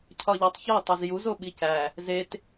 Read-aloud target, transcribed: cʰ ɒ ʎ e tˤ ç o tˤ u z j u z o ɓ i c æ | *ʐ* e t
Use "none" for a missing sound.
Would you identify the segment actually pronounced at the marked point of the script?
z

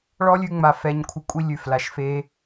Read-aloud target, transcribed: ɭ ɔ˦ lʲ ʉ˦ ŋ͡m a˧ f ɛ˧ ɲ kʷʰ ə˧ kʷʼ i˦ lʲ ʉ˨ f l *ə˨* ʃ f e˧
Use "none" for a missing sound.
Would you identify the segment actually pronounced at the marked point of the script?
a˨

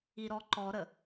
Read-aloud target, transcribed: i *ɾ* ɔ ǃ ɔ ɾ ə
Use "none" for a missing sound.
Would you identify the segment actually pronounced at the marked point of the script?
ɾ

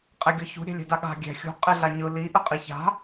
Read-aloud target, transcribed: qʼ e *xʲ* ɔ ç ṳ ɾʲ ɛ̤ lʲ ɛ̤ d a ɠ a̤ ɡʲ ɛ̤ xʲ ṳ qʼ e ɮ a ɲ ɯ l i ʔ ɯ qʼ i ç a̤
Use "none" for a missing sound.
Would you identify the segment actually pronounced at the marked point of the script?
ɡʲ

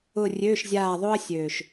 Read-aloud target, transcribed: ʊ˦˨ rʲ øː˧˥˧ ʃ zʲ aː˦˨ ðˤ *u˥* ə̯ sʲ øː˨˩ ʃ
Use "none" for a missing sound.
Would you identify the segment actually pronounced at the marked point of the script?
o˥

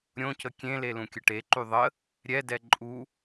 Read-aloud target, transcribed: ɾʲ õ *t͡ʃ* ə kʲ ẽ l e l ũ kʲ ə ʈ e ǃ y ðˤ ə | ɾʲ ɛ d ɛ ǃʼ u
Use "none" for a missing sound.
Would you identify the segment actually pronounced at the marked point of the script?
c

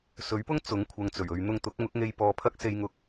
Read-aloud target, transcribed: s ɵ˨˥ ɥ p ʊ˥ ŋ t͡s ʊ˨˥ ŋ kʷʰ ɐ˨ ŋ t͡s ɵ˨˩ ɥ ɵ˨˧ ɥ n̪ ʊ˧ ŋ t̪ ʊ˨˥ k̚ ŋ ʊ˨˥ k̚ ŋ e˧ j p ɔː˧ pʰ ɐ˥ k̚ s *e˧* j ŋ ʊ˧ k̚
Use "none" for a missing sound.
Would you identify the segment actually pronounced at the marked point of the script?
e˧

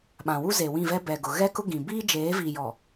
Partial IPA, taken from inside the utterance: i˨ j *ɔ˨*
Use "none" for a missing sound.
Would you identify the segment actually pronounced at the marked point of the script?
ɔ˨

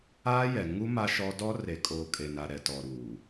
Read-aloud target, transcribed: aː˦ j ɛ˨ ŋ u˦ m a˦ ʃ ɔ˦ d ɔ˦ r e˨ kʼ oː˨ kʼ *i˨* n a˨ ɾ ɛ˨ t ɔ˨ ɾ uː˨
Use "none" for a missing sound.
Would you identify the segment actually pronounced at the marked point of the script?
e˨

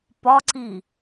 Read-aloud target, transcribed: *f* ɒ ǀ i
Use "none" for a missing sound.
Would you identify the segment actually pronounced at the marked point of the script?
p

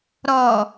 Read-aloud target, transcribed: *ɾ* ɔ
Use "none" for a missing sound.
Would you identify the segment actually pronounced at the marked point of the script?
ɾ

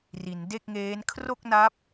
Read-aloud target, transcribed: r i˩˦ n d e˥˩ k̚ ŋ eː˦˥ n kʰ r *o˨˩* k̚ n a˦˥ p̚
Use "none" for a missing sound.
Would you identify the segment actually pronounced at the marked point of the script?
o˥˩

